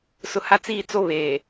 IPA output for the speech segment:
sʊ˨ ha˦t͡siː˦˨t͡so˦ βeː˨

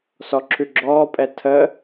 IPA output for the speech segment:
sɔǁʰʉɡ͡ǁɔːpʼɛ tʰəː

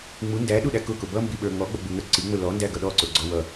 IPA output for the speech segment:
ŋ͡mu ndæɗuɗæ kʊkʊ bʌmbiɓə˞ ŋɔɡ͡bʌɡ͡buŋə˞ ǀiŋ͡mʊ lɔndæɡʌ ɗɔǀʊɡ͡ǀɔ wʌ

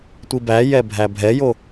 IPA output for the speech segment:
tʷibæjɛ bʱæbʱɛjo

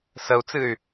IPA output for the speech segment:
səu̯t͡sɨy̯

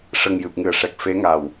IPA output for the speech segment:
ʂə˨˩ŋjɨ˨˩p̚ŋɨ˨˩ə̯ʂɛ˨˩k̚ fe˧˥ŋa˨˩w

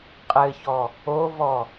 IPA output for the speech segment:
qʼɘçɔ | ovɔ

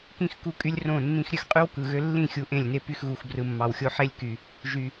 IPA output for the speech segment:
kĩ˦x ku˦kʼy˦lʲ rõ˦˨nːĩ˦x ɾʲø˦xqʼy˦w kɯ˨ɣø˦ lːĩ˦˨xʲu˨ ʔẽ˦˨lʲne˦ py˦xɣu˨xbrɯ˨ mːɑ˨wxʲo˦ ħe˦lʲky˨ | ʒy˨

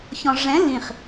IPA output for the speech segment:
çɔ̃ʐɛ̃ lĩχ

